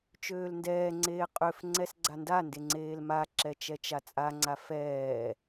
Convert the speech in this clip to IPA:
t͡ʃ øː l n d ɛː ŋ͡ǀ eː qʼ ø f ŋ͡ǀ ɛ s ɡ͡ǀ a n d a n d e ŋ͡ǀ eː l m a ǁ ɛ t͡ʃ ɛ t͡ʃ a t͡sʼ a ŋ͡ǀ a f ɛː

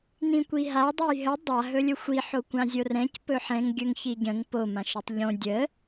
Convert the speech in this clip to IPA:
n ĩ kʷ i ɦ a dˤ ɵ j ɦ ə dˤ a ɦ ɵ lʲ ɵ xʷ i ħ o kʷ ã zʲ o r ɛ̃ c p ɵ ħ ɛ̃ ŋ ɡʲ ɵ ŋ ç i ɟ ə̃ ŋ p o m ã ʃ ɵ tˤ ʎ õ dʲ ə

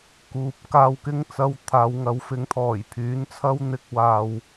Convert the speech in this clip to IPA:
k uː˨ p̚ k aː˧ w k ɪ˥ ŋ t͡s ɐ˧ w t̪ʰ aː˨˧ w ŋ ɐ˨˥ w f ɪ˨˥ ŋ t̪ʰ ɔː˨˩ j pʰ yː˨˥ n t͡sʰ ɐ˥ w n̪ ɪ˥ k̚ w aː˨ w

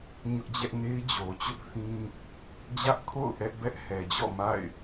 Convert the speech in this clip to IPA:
ɲ ʊ˦ ʔ d͡ʑ ɛ˦ ʔ n e˦ ɪ̯ d͡ʑ o˨ t͡ɕ ʊ˦ ʔ θ ĩ˦ | d͡ʑ ä˦ ʔ kʰ o̰˦˨ ʊ̯ ʔ ɛ˦ ʔ b ɛ˦ ʔ h ɛ˨ d͡ʑ ɔ̰˦˨ m a̰˦˨ ɪ̯

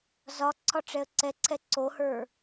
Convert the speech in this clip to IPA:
z ɒ ǀʰ ɒ ʈ͡ʂ ɛ ə̯ ǀ ɛ ǀʰ ɛ ǀ o h ə˞

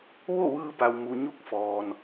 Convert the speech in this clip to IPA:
ʋ o˥˨ ʋ ɯː˧ b a˩ w m u˩ ɲ u˥˨ k̚ f ɔː˩ n

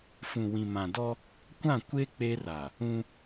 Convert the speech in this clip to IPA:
f ũ˨ w ĩ˨ m ã˨ d ɔ˦ | kʷ ã˦˨ kʷ e˦ k͡p e˦ r a˨ | ũ˦

